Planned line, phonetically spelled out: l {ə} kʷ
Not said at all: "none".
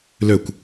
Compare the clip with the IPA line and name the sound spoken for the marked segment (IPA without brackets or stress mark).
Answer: ø